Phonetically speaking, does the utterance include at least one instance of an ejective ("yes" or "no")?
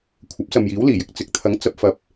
no